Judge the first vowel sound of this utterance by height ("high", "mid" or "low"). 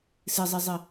high